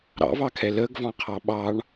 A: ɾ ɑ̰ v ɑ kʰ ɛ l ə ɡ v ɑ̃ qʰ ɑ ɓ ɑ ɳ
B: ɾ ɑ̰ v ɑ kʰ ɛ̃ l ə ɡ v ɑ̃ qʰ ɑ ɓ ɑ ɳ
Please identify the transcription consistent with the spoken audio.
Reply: A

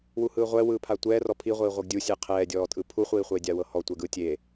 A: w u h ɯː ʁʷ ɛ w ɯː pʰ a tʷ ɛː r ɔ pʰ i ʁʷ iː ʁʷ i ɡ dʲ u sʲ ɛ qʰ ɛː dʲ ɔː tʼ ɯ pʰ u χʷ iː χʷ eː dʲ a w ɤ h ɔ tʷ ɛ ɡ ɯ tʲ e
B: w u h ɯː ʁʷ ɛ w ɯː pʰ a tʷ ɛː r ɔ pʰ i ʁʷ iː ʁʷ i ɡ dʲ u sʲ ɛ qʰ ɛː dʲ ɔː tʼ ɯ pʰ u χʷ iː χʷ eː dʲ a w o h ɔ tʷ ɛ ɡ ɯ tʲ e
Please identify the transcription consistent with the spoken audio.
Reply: A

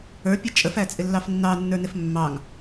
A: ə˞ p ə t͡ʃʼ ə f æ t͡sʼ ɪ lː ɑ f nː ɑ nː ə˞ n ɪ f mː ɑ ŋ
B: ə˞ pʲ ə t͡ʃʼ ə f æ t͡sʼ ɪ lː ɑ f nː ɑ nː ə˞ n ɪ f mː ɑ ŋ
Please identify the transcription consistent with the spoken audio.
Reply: B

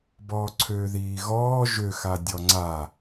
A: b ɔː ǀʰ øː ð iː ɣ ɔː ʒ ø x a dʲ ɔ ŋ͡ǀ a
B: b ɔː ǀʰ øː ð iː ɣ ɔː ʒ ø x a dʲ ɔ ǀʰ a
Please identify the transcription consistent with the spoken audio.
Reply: A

